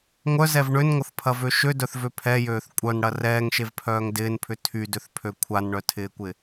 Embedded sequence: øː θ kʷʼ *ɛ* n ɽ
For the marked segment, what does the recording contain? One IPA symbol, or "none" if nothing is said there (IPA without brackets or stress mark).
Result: œ